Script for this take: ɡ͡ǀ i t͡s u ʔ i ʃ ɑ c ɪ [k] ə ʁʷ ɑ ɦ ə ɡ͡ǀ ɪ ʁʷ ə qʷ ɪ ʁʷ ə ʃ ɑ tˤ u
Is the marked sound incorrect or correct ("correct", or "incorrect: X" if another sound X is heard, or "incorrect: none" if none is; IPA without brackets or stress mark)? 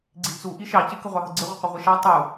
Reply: correct